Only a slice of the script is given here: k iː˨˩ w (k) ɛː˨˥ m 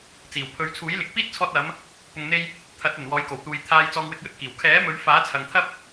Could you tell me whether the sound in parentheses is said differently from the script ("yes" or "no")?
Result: yes